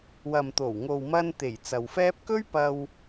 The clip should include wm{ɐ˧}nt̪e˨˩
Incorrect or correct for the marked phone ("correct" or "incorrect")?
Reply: correct